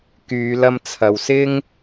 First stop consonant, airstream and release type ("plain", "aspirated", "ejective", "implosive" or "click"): plain